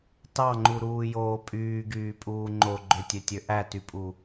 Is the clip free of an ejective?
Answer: no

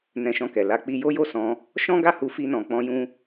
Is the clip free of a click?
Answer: yes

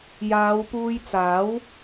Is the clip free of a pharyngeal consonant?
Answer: yes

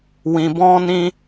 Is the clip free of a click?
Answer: yes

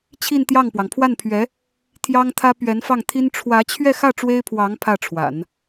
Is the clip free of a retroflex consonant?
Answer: no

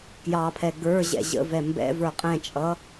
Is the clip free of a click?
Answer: yes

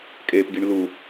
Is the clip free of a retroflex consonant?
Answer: no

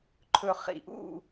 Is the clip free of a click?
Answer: no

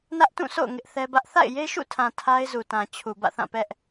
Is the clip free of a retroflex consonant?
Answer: yes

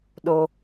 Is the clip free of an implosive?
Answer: no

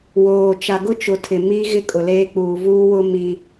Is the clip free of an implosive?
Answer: yes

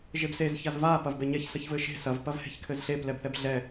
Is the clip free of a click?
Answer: yes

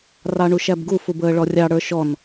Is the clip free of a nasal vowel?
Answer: yes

